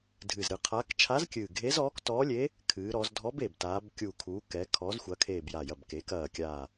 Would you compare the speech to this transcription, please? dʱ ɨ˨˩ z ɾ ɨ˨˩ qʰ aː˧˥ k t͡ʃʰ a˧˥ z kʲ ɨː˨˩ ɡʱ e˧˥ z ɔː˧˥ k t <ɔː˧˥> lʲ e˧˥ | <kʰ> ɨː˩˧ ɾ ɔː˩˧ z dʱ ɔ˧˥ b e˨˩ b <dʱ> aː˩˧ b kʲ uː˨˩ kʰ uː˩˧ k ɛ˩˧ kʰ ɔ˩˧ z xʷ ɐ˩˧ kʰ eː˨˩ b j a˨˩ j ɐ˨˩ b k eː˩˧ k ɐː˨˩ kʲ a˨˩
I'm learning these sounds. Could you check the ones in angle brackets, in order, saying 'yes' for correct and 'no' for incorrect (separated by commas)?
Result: yes, yes, no